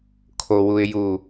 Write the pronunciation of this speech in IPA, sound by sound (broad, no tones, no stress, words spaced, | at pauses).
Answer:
kʰowuɪ̯ju